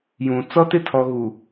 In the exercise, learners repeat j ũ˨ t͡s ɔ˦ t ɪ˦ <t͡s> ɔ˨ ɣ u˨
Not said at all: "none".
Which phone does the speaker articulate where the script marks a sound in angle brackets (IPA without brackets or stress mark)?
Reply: tʰ